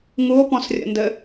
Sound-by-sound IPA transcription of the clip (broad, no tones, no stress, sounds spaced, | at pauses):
ŋ u o̯ p ɔ̃ s rʲ ə̰ n d ɘ